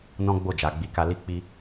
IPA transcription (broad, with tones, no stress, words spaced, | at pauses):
nɔ̃˦ɡ͡bo˦˨ d͡ʒa˨ɡ͡bi˨˦ka˧ li˦k͡pi˦